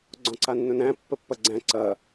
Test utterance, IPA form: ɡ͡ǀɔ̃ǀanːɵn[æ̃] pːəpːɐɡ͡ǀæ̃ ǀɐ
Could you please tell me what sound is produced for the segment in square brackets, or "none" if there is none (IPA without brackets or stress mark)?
æ̃